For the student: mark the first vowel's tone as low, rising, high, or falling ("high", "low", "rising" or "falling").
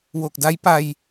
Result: low